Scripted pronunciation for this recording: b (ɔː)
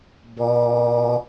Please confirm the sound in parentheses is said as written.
yes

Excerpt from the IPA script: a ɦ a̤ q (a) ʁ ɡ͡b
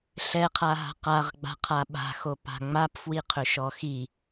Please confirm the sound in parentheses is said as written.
yes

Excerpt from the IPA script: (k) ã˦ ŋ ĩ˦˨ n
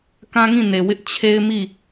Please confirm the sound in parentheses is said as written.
yes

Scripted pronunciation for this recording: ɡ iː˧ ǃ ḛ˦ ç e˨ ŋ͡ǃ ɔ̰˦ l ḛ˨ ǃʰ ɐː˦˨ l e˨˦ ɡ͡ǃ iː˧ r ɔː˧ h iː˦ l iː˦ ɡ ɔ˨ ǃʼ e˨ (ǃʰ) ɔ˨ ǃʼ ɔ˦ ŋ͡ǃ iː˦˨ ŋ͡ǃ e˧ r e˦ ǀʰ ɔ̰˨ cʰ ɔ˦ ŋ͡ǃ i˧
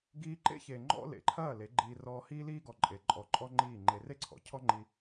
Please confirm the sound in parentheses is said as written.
no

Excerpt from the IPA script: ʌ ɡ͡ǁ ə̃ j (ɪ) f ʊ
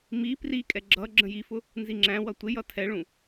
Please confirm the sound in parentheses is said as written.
no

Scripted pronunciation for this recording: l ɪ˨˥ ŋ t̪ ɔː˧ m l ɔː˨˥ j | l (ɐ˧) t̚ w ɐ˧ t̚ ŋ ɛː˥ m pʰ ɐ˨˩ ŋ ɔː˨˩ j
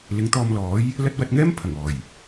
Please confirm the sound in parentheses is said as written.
no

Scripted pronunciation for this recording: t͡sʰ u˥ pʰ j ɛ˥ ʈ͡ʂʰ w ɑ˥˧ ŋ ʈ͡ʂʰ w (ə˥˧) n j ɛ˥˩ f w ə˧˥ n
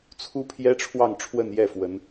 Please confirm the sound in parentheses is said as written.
yes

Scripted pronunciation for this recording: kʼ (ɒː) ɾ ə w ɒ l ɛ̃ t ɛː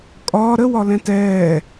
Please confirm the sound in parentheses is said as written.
yes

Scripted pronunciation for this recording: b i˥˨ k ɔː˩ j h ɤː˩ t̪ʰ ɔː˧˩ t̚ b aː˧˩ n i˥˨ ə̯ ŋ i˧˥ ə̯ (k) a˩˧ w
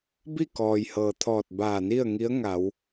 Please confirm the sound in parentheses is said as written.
no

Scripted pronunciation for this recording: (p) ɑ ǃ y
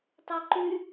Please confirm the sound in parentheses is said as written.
no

